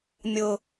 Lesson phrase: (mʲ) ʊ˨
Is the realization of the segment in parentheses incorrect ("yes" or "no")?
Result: no